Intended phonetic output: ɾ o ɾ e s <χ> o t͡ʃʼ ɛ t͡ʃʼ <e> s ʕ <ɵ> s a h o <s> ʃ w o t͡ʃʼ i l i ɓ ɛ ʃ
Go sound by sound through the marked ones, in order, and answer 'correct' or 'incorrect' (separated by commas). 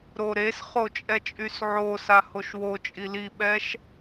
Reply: correct, incorrect, incorrect, incorrect